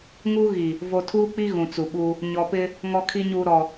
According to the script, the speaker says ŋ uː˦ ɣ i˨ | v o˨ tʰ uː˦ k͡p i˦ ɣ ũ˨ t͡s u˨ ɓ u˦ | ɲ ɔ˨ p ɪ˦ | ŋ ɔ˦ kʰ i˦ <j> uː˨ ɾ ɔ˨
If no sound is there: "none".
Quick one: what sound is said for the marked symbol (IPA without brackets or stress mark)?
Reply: ɲ